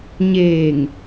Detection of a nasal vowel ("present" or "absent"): absent